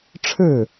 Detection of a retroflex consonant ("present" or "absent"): present